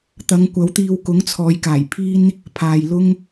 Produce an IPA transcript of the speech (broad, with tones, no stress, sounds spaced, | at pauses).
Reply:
t̪ ɐ˨˧ ŋ kʷ ɐ˨˥ w t̪ iː˧ w k ʊ˨˥ ŋ t͡sʰ ɔː˨˧ j k aː˨˩ j pʰ iː˥ n | pʰ aː˨ j l ʊ˥ ŋ